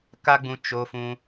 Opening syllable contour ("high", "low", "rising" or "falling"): high